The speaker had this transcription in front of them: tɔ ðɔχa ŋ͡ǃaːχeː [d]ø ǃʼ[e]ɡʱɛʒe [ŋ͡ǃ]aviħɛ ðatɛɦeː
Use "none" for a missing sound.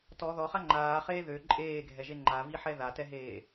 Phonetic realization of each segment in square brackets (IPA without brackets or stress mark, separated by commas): ð, eː, ŋ͡ǃ